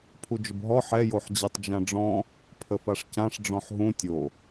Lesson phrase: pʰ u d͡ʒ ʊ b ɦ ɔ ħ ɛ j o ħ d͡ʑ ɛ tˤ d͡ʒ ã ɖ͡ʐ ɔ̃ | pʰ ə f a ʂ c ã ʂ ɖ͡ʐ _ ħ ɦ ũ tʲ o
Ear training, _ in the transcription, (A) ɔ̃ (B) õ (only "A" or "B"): A